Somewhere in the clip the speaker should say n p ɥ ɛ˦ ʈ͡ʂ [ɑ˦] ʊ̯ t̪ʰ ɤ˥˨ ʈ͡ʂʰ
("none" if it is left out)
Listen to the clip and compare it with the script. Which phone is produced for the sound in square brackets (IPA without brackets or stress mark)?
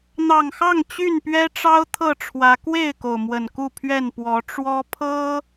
ɑ˦